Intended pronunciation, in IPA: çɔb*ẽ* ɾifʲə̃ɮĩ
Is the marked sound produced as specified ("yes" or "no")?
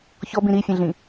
no